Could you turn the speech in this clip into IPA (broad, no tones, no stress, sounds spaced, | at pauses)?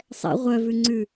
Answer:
sˤ ɛ̰ ʁʷ œ v ʉ ŋ͡ǀ ʉ